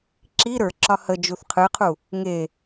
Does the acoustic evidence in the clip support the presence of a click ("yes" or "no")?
yes